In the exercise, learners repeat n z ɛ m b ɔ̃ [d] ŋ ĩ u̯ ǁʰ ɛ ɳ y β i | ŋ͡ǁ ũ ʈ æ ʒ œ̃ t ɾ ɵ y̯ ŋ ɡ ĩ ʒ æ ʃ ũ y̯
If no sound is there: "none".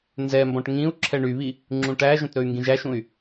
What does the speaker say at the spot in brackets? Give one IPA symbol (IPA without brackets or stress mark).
ʈ